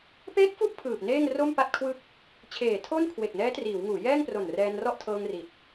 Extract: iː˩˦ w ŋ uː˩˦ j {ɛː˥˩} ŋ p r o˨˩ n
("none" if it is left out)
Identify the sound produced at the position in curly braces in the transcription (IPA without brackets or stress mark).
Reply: ɛː˥˩